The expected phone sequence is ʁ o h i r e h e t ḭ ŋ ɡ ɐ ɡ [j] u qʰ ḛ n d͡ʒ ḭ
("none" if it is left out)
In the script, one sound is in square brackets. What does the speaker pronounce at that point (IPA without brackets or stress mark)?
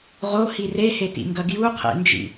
j